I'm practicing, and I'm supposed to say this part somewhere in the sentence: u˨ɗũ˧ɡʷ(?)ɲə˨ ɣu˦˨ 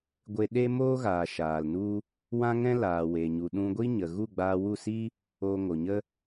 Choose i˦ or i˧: i˦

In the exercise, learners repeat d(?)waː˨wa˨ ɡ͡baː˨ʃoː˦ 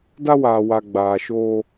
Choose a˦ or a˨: a˦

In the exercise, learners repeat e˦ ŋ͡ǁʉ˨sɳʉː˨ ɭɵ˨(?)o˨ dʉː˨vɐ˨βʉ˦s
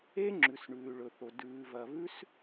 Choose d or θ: θ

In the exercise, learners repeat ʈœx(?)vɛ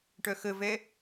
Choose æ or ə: ə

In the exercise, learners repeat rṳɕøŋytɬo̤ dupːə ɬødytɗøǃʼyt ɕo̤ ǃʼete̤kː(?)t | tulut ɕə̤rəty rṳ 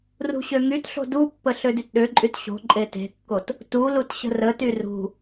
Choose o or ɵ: o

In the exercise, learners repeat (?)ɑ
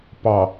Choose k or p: p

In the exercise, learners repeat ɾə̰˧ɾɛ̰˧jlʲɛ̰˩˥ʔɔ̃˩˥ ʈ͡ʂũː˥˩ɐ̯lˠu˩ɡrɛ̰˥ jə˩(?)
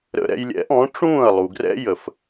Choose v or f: f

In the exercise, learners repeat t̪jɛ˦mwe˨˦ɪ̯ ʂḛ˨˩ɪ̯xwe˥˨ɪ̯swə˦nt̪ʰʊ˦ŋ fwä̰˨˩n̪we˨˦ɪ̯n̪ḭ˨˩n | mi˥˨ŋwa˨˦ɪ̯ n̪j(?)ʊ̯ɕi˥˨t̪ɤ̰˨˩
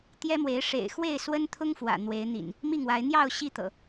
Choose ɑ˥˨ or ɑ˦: ɑ˥˨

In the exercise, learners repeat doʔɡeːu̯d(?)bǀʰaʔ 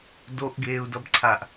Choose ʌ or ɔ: ʌ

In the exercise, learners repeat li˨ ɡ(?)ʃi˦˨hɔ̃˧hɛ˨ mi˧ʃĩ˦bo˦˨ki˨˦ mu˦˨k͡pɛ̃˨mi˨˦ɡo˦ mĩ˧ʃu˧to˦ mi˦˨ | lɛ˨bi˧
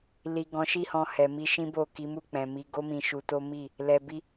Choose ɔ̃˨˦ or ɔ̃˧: ɔ̃˨˦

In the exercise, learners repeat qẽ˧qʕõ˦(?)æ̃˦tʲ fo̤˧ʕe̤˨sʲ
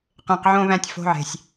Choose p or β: β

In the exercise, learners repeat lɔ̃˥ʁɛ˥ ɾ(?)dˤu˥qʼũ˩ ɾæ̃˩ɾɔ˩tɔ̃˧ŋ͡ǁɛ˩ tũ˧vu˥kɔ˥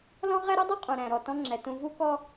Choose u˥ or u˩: u˥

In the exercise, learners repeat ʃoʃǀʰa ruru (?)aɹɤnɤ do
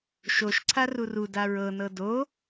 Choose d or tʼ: d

